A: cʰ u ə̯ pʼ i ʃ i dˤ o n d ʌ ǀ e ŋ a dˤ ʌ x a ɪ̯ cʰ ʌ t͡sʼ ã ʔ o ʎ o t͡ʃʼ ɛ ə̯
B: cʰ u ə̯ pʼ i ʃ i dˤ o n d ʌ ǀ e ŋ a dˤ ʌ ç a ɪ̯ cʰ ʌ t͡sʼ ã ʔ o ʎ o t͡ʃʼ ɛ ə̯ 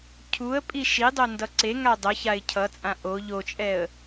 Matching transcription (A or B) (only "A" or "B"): B